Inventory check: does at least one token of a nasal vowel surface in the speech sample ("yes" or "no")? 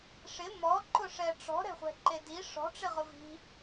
no